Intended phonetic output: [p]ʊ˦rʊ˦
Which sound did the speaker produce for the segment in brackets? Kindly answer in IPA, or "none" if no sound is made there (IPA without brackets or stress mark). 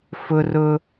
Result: f